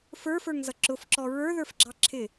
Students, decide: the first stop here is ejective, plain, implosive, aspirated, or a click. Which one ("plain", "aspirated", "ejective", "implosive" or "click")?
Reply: click